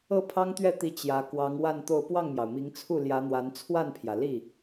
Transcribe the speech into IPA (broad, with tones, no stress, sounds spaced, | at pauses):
ɤ˥˩ pʰ ɑ˥ ŋ t̪ ɥ ɛ˥˩ t̪ i˧˥ t͡ɕ j ä˧˥ k w ɑ˧˥ ŋ w a˥˧ n t̪ o˥˧ ʊ̯ p w ɑ˥˩ ŋ m j ɑ˩ ʊ̯ m i˧˥ ŋ t͡sʰ u˥˩ l j ä˧˥ n̪ w a˧˥ n t͡sʰ w a˥˩ n pʰ j ä˩ l i˥˩